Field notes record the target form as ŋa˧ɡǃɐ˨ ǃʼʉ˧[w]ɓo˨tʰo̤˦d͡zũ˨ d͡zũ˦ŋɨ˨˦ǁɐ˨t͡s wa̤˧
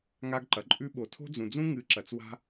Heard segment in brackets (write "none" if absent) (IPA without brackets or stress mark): none